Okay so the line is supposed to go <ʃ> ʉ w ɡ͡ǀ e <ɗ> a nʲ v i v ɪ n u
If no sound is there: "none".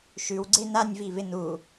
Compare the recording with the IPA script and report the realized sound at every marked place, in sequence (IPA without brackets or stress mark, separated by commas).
ʃ, n